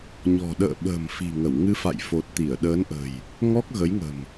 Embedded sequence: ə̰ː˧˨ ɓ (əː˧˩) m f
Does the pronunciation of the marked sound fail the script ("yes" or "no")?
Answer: yes